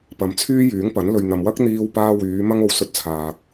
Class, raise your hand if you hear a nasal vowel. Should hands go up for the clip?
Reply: no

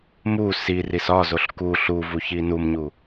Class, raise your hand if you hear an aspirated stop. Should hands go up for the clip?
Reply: no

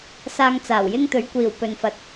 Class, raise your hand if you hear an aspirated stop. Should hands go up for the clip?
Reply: no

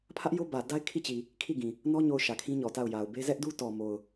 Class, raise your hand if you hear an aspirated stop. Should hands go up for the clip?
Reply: yes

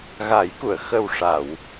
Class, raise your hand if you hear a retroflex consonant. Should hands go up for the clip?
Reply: yes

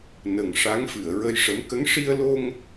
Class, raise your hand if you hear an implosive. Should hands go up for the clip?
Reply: no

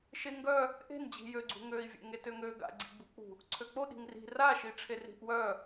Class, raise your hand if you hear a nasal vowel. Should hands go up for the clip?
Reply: no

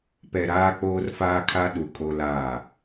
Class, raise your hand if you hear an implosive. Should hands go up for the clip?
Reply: yes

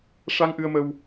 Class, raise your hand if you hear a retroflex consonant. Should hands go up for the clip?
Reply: yes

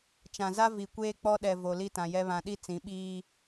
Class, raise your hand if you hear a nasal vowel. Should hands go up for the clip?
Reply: yes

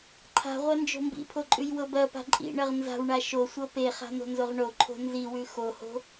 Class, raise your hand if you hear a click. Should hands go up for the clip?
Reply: yes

